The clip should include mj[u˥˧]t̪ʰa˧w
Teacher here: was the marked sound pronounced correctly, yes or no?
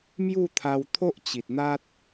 yes